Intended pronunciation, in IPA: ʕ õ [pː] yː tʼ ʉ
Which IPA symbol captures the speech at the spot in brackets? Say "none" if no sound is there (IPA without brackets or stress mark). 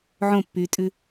pː